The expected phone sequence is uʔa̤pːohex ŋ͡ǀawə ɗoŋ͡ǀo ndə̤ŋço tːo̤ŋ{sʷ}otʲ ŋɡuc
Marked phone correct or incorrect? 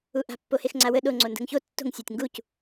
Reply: incorrect